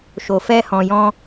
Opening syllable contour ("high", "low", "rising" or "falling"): low